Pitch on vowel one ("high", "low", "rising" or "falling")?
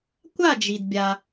falling